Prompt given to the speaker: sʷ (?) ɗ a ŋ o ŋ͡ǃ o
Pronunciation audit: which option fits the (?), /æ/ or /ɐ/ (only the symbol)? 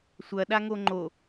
ɐ